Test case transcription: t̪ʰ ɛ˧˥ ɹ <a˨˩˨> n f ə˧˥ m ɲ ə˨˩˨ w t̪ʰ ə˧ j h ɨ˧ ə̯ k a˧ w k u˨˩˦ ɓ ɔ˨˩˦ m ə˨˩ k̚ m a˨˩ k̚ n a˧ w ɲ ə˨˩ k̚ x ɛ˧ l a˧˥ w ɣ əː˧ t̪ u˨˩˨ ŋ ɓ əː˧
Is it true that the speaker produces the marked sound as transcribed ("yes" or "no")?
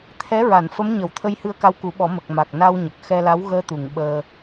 yes